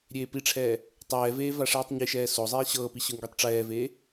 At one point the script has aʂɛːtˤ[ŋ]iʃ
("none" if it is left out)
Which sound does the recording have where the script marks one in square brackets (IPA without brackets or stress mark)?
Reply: ɲ